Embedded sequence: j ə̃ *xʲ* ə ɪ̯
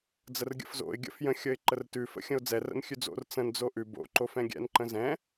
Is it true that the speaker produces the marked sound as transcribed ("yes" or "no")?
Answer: yes